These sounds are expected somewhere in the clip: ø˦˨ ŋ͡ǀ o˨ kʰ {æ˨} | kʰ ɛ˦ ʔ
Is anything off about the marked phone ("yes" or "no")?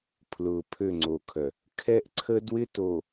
yes